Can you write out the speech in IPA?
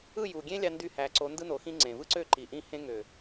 ɯ˦˨ j u˨ ɡʲ ẽ˦ lʲ ɑ˦ n d y˦˨ h æ˨ ǀ o˨˦ n d ɯ˦ n o˨ x ĩ˦ ŋ͡ǀ ẽ˨ v ɯ˦ ǀ ø˦˨ ǃ i˨ ʔ ĩ˦ h ẽ˦ ŋ ø˨

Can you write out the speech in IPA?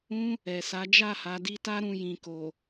ũ˦ | ɛ˨ s a˨˦ d͡ʒ a˦˨ h a˨ d i˧ t a˦ ɾ ũ˧ j ĩ˨ k o˨

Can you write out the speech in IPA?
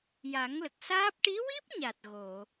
j a˨˩˦ ŋ l ə˨˩ k̚ s aː˦˥ p̚ ʈ i˧˥ w i˦˥ p̚ ɲ a˨˩ t̚ ɣ o˨˩˨

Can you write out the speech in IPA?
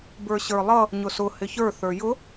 b ə˞ ɕ ə˞ lˠ ʌ | ɲ ʊ s ʊ h ɪ ç ə˞ θ ə˞ j ʊ

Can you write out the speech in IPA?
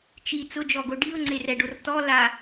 t͡ʃ i t͡s ʊ d͡ʒ ɔ ɡ o ɖ i ʊ̯ ŋ͡ǀ e r ɛ ɖ o r t ɔ l a

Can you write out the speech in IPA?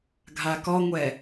ɡʱ a k ɔ ŋʷ ɛ

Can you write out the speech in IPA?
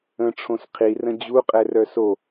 ə̃ ʈ͡ʂʰ õ s qʰ i r ə̃ d͡ʑ u qʼ ɛ r œ s o

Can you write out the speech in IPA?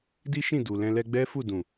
d i˦ ʃ ĩ˦˨ d u˨ l ɛ̃˧ l ɛ˧ ɡ͡b ɛ˦ f u˦˨ d ũ˨

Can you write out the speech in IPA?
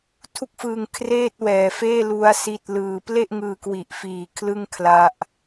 tʰ u˦˥ k̚ f ɯː˧ ŋ kʰ r eː˥˩ t̚ w ɛː˨˩ f eː˥˩ l u˦˥ a̯ s i˦˥ t̚ l ɯː˧ p l e˥˩ ʔ ŋ ɯː˧ k w i˨˩ ʔ f iː˨˩ kʰ l ɯ˥˩ ŋ kʰ l a˦˥ ʔ

